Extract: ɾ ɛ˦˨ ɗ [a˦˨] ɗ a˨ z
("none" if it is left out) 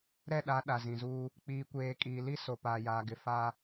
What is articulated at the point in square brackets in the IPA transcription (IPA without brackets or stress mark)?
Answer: a˨˦